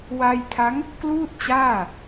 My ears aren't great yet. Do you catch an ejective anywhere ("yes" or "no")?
no